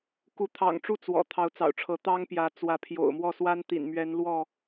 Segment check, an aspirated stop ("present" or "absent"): present